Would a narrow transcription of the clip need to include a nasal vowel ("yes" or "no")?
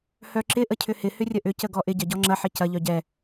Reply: no